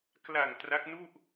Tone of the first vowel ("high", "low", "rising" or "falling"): low